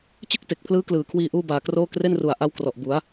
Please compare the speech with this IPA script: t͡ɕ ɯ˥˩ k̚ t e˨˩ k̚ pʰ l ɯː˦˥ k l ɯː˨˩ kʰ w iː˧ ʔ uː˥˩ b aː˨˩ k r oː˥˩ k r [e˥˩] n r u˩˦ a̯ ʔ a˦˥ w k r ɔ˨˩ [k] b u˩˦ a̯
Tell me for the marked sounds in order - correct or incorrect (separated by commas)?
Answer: correct, incorrect